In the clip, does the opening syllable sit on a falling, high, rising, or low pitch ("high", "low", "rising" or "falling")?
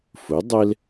rising